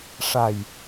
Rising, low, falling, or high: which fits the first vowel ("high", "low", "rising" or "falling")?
low